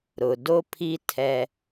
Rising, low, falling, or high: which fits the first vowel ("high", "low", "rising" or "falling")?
low